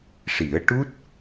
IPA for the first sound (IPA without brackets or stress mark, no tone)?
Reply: ʂ